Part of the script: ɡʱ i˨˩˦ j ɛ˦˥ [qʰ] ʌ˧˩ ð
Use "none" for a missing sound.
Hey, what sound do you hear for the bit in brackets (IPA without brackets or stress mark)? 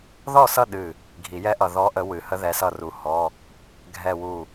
ʔ